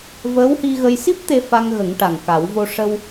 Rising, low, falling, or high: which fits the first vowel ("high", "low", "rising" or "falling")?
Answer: rising